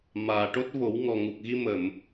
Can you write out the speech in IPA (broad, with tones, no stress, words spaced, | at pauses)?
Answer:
maː˨˩ ʈo˦˥t̚vo˨˩˦w ŋɔ˨˩ŋu˨˩k̚ ɣi˧mə˨˩˨m